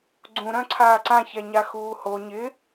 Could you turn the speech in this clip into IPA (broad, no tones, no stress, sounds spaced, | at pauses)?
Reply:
ɡ͡ǀ ũ ɾ œ̃ ǀʰ aː ǀ ã ç ɛ ɲ a x uː h o ɲ ɪ